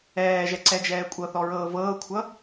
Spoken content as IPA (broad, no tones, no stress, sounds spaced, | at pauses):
ɛː ʒ ɛ ǀ ɛ d͡ʒ ɛː kʷʼ ɤ θ ɔ ɹ ɤː v ɤː kʷʰ ʌ